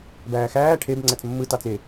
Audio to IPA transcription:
bæːxæː ʈʰeb ŋ͡ǀæt͡smːɯ tɑt͡se

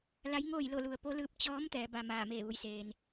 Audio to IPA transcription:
la˧˥jŋoː˥˨jlo˥˨ lu˧ə̯ po˧˥lɯː˧p̚ t͡ɕɔː˧˥m t̪ɛː˩˧ba˧maː˧˩ meː˧˩ʋu˩˧jseː˩n

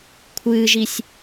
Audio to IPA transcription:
kʷʰɨːʒisʲ

